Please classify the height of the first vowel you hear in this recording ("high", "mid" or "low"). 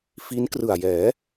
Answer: high